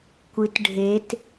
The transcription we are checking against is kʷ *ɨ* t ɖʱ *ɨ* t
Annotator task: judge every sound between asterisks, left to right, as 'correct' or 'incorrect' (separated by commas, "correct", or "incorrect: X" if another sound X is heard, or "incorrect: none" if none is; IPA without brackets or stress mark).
correct, incorrect: e